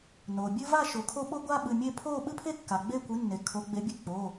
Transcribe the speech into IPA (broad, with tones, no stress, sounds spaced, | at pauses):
n o˩ bʲ ɨ˦ v a˥˨ ʃ o˩˧ kʰ o˦ ɓ o˦ ɡʷ a˦ ɓ ɨ˩˧˩ mʲ e˥˨ pʰ o˥˨ ɓ ɨ˦ pʰ e˦ kː a˩ ɡ͡b e˥˨ kʷ ɨ˩˥ nː e˩ kʰ o˩˧ ɡ͡b e˩˧ bʲ ɨ˥˨ k͡p o˩˧˩